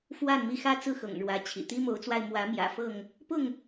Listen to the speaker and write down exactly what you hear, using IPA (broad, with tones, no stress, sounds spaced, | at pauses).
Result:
f w a˥˨ n m i˥˨ x ä˥˨ t͡s ɹ̩˥˨ x ɤ̰˨˩ ŋ ɻ w ä˨˦ t͡ɕʰ ḭ˨˩ t̪ i˦ m o˨˦ ʊ̯ t͡s w a˧ ɪ̯ m w ä˨˦ m j ä̰˨˩ f ɤ˥˨ ŋ | p ʊ˥˨ ŋ